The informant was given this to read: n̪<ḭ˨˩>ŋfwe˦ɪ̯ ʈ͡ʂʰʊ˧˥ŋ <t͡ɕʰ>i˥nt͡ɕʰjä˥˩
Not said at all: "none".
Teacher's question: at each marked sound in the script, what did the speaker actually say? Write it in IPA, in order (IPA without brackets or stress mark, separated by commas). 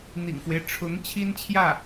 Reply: ḭ˨˩, t͡ɕʰ